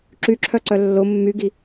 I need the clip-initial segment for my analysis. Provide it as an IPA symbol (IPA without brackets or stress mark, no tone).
ǁ